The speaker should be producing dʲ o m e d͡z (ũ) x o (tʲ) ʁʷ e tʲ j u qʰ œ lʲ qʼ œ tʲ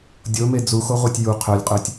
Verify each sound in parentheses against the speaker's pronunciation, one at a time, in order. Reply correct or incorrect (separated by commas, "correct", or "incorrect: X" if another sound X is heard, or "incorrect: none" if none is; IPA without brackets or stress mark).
incorrect: u, incorrect: none